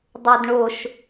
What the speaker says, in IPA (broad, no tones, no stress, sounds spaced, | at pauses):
dˤ o d ɳ o ʃ